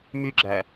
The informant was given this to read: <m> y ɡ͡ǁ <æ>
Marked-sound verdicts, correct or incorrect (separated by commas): correct, correct